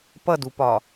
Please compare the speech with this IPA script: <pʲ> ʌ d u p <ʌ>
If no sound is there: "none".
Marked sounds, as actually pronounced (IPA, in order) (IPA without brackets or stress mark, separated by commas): p, ɒ